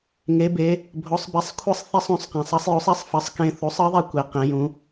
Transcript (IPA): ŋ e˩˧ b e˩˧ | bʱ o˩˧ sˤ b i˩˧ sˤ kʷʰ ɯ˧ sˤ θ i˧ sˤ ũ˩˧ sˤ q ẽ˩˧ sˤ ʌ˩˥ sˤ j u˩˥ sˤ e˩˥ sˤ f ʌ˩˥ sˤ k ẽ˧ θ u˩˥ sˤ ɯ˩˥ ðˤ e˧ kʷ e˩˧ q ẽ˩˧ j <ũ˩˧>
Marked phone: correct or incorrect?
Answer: correct